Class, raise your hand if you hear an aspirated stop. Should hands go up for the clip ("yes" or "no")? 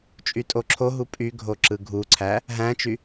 yes